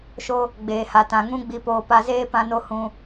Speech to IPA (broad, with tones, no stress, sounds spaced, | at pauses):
ʃ o˧ | ɡ͡b eː˨ h a˨ t ã˨ ŋ ũ˦ ɡ͡b i˧ p oː˧ p a˧ z eː˦ p ã˦ n o˦ h ũ˧